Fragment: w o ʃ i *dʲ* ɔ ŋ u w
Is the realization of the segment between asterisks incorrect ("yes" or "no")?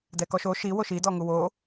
yes